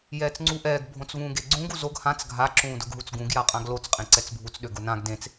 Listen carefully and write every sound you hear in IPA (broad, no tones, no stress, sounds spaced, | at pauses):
j ɛː t͡s ŋ͡ǀ u ʔ ɛː ɡ bʱ õ t͡s v ũː ɡ e ɡ͡ǀ ũ ɡ u z o ɡ h ã t͡s ɡʱ a ǁ ũː d ʊ ɡ ɦ u t͡s ɡ ũ ɡ j a qʼ ã ɡ l o t͡s qʼ ẽ ǀ ɛ t͡s bʱ u t͡s ɗ ø ɡ ʊ n ã ɡ d ẽ t͡s